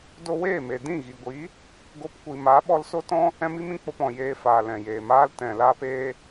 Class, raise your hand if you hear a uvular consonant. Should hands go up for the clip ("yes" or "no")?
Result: no